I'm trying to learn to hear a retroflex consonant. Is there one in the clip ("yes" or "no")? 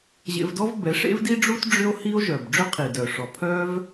yes